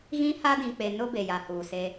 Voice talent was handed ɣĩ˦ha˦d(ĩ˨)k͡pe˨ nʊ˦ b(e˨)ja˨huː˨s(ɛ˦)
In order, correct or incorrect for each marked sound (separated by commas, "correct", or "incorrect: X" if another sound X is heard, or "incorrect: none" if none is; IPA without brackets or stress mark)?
correct, correct, incorrect: e˦